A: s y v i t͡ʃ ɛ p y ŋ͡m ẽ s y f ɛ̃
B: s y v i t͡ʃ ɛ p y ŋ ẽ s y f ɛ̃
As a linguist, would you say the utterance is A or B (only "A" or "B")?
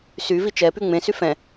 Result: A